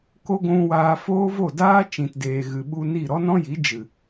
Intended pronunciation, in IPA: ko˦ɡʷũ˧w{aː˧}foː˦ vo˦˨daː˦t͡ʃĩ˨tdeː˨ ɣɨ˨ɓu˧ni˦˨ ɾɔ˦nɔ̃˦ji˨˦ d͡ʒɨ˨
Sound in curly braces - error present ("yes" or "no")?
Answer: no